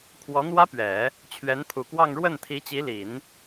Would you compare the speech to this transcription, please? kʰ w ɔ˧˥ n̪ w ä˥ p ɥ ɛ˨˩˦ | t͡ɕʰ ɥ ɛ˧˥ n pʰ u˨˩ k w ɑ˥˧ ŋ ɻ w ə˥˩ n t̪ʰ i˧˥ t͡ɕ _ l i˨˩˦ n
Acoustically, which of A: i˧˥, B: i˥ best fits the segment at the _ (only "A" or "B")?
A